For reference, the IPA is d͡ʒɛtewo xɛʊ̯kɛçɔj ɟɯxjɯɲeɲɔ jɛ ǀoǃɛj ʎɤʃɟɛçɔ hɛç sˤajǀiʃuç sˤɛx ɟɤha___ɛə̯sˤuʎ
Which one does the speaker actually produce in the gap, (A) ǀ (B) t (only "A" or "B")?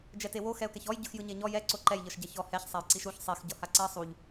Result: A